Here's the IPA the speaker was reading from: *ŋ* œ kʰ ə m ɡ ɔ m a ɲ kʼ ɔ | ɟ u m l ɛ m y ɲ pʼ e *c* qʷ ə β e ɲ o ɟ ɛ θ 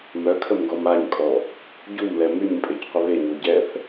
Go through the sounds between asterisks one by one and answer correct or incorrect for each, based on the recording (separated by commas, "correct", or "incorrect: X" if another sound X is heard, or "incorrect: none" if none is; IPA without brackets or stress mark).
incorrect: m, correct